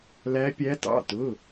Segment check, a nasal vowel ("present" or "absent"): absent